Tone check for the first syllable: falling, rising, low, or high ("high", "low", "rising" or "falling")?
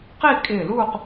falling